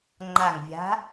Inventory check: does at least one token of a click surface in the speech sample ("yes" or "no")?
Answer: yes